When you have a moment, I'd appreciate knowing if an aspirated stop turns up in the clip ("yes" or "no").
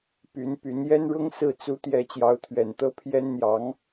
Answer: yes